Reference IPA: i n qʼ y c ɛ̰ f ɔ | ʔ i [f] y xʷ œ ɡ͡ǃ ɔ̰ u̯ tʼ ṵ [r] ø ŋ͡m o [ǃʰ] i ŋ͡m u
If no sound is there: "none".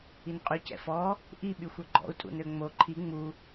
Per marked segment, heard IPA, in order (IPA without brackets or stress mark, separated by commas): ɓ, n, ǃʰ